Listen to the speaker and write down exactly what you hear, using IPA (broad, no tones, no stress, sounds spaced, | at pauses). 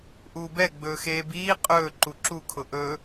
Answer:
ʔ uː b ɛ ɡ͡b ɵː x eː b iː qʼ ɵː ǃ u ǁ u kʰ ʊ ʔ ɵ